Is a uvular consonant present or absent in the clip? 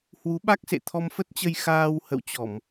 absent